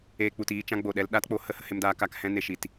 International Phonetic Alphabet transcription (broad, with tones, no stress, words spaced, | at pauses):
eː˧k͡pu˨tiː˧ t͡ʃã˧ ɡ͡bo˨ɗɛ˧l ɗa˦tk͡po˧ hə˦ hə˧he˧mdaː˧ ka˧k hɛ̃˧ne˨ʃi˨t